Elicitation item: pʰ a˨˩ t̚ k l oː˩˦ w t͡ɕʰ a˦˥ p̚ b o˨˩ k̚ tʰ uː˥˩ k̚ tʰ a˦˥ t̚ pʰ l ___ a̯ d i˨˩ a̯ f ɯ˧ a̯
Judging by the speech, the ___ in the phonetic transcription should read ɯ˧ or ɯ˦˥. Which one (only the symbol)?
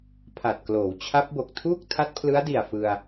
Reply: ɯ˦˥